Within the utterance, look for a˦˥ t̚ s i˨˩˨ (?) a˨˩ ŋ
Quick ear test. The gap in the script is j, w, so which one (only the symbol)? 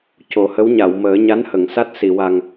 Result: w